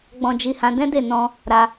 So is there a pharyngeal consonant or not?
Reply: no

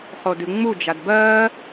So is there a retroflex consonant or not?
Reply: no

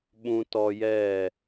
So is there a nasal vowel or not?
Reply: yes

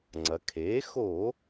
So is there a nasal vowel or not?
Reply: no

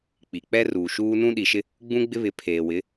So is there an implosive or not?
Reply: yes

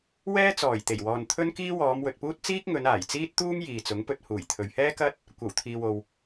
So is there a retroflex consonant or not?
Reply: no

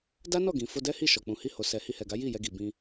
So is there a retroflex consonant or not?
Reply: no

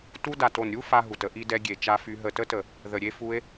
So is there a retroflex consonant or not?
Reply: no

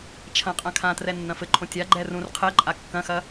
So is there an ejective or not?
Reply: yes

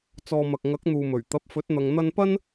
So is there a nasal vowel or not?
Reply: no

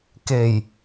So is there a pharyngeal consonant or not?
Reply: no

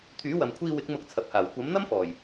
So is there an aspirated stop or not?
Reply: yes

